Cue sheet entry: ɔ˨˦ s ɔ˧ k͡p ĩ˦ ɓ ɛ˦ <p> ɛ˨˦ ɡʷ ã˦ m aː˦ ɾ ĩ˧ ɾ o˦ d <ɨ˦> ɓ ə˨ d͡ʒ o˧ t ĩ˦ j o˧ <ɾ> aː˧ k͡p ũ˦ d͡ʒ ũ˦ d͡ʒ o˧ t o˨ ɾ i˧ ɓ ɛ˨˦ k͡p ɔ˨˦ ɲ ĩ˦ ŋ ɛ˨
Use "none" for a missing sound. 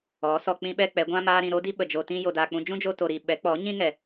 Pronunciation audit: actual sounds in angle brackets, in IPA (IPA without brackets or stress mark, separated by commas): k͡p, i˦, d